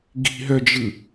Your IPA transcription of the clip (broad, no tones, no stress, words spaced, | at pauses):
ɡi̤ɦœd͡ʒɯ